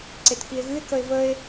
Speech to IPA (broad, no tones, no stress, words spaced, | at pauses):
ǀetkie̯ɣɨe̯ kəe̯vəe̯